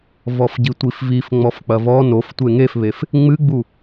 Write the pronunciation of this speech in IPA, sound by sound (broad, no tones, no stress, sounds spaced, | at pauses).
v ɔ f ɟ i tʷ i f v i f ŋ͡m ɔ f k͡p ɐ v ɔ n o f tʷ e ŋ e f β e f | ŋ͡m ɨ ɡ͡b u